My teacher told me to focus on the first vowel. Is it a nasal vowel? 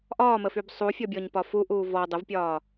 no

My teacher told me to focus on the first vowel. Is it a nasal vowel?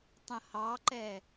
yes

